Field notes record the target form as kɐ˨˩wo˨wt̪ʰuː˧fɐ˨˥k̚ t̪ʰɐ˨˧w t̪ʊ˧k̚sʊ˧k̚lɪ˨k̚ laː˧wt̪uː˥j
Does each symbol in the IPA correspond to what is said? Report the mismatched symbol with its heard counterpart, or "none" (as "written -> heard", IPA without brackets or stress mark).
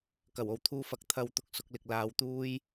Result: aː˧ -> aː˨˧